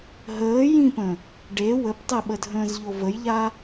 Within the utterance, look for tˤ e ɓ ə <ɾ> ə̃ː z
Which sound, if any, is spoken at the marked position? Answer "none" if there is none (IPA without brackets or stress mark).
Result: dʱ